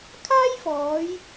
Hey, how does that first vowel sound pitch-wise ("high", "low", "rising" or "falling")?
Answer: high